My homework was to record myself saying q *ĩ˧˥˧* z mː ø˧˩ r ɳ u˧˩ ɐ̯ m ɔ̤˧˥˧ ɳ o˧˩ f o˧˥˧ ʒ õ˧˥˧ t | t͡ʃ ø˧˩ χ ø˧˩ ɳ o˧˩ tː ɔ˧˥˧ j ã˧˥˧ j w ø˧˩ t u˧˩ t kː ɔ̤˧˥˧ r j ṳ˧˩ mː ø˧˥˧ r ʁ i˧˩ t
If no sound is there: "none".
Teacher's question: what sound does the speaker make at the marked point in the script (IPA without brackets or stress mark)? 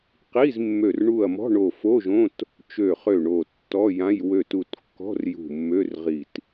i˧˥˧